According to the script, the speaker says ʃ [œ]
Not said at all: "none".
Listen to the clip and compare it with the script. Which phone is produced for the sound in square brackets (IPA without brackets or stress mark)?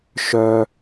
œ